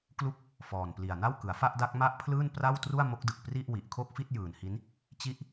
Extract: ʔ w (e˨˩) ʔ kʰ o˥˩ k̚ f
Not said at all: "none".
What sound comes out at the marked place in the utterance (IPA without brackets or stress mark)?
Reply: i˨˩